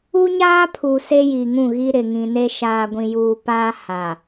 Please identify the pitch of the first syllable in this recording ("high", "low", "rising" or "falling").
high